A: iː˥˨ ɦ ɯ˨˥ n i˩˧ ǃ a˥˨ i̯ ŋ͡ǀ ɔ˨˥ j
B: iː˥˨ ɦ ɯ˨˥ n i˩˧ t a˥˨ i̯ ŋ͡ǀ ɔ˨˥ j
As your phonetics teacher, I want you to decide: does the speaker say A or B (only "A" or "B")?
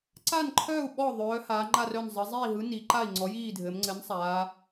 A